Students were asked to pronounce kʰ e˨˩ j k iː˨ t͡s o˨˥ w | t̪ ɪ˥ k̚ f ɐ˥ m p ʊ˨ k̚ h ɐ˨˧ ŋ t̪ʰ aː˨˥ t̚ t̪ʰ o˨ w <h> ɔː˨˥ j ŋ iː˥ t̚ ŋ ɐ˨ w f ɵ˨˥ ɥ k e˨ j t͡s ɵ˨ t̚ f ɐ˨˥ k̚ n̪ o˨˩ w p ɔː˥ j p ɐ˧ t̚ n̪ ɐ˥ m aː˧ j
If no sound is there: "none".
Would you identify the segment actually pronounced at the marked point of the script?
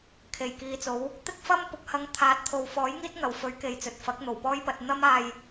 f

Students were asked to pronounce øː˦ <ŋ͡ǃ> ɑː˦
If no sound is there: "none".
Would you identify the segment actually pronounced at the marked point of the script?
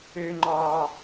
ŋ͡ǃ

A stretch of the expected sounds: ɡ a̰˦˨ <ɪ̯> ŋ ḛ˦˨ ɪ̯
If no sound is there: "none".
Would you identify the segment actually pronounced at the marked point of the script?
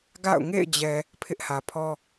ʊ̯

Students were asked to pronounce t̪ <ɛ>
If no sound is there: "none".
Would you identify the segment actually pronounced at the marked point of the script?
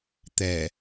ɛ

